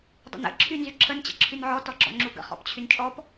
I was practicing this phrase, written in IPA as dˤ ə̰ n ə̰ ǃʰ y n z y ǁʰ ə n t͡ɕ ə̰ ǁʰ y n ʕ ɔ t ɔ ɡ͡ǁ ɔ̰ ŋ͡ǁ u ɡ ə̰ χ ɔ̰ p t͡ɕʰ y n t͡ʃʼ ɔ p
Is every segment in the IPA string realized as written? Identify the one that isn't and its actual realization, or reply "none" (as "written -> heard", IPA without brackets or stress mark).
ǃʰ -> ǁʰ